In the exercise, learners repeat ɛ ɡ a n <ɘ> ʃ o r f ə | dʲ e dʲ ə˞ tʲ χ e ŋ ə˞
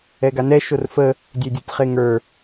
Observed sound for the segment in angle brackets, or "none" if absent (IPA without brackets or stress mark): ɛ